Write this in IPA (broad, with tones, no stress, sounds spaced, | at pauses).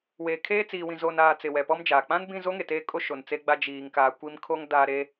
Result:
w eː˨ kʰ eː˦ t͡s iː˨ w ĩ˨ z oː˨ n aː˨ t͡s ɪ˨ w ɛ˨ p ɔ˦ m d͡ʒ aː˨ k͡p ã˦ n b ĩ˦˨ z o˦ ŋ e˨ t eː˦ kʼ o˦ ʃ o˨ n t͡s e˦ ɡ͡b a˦ d͡ʒ iː˨ ŋ k aː˨ kʷ i˦ m kʰ o˦ ŋ d aː˨ ɾ e˨